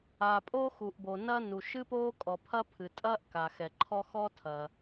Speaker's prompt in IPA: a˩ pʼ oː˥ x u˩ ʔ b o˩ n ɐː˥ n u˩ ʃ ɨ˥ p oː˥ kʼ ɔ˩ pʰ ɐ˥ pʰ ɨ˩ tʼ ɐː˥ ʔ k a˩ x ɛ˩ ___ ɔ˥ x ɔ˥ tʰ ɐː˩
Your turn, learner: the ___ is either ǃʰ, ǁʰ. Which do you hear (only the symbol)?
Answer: ǃʰ